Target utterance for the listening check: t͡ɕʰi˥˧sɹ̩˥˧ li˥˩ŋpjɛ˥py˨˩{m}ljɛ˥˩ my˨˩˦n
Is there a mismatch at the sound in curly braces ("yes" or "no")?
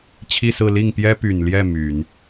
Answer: yes